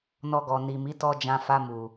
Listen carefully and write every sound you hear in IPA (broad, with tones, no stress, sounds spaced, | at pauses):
n ɔ˧ ɡ ɔ˨ n i˨ m i˨˦ t ɔ˧ d͡ʒ ã˧ f a˧ m u˨